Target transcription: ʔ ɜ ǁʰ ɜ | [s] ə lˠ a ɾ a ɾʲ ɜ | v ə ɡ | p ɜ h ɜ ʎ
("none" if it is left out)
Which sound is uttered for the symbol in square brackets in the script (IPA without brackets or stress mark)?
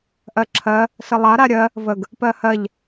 s